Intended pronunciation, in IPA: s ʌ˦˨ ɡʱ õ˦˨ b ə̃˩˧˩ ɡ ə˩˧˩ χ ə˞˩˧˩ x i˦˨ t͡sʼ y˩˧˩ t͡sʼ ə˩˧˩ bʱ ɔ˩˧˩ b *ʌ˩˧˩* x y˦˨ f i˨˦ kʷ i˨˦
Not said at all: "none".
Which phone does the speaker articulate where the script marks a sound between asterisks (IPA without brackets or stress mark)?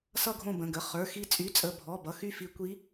ʌ˩˧˩